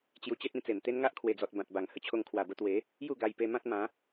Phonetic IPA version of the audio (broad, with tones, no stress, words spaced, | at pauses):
t͡ɕju˧t͡ɕe˦t̚ĩ˥˧t͡se˨˩m t̪e˦nŋa˦ʔkʰwe˨˩d͡zɔ˨t̚ bã˨t̚ba˨˩ŋ hə˧t͡ɕʰo˧ŋ kʰwa˨˩bə˧ t̪we˨˦ | ju˥˧ɡa˧jpe˧ mã˦t̚mã˨˦